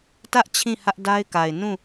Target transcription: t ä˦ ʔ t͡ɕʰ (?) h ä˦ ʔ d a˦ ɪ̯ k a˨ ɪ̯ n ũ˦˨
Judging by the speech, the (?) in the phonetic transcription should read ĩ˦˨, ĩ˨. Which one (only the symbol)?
ĩ˦˨